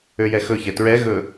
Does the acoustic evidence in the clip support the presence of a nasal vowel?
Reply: no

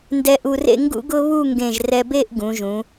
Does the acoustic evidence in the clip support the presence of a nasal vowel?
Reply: yes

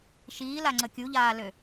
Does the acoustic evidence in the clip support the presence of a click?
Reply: yes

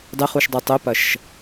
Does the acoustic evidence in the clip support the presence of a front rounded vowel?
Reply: yes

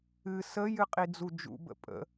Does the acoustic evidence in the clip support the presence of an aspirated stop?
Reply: no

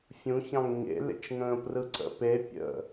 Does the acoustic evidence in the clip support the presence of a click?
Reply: yes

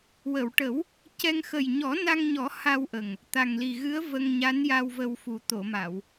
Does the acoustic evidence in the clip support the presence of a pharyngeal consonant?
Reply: no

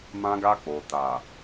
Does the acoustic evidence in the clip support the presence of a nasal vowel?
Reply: yes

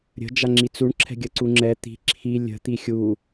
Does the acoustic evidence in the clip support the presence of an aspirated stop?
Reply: yes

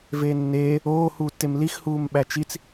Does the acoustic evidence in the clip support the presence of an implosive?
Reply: yes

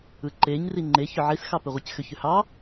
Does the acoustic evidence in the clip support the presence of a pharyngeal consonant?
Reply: yes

